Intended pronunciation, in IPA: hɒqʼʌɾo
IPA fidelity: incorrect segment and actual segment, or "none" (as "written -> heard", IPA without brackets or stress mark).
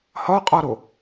ʌ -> ɒ